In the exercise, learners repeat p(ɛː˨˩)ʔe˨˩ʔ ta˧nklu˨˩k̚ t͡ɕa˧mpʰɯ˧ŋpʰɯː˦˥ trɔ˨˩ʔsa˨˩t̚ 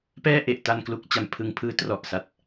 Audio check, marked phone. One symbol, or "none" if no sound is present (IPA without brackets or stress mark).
ɛː˥˩